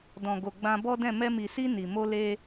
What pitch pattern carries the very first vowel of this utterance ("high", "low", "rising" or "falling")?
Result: low